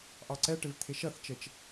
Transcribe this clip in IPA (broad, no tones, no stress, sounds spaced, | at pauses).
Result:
ʔ ɑ ǀ ɛ ʈ ɪ v t̪ʰ ɪ ʃ ʌ θ t͡ʃ ə t͡ʃ